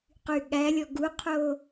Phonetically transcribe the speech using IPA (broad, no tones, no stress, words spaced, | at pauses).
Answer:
qyɠælʲɔ ɡuqʰo